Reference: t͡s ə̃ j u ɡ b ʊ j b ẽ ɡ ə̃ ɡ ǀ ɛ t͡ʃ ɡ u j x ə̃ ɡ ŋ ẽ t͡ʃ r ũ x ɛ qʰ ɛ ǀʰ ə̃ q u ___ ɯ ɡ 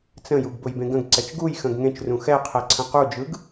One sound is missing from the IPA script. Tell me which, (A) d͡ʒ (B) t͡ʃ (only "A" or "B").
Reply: A